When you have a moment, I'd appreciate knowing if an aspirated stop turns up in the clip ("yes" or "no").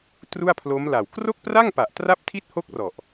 yes